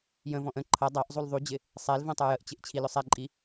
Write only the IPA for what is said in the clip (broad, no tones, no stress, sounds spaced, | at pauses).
j ə̃ v ɔ̃ ʔ ə̃ ǃʰ ʌ dˤ ɑ ʔ zˤ u l ðˤ u d͡ʑ ɪ | sˤ ɛ l v ɛ̃ tˤ ə˞ j ə ʔ t͡ɕ ɪ ʔ t͡ɕʰ i l ʊ sˤ ɛ ǃʼ i